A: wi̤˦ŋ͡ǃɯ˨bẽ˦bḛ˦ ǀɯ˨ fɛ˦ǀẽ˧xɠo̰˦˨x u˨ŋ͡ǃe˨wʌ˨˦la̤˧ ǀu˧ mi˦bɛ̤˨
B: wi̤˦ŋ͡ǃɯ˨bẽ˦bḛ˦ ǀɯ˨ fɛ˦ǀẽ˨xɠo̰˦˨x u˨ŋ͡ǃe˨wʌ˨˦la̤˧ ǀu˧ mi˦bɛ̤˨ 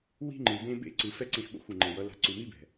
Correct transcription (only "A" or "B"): A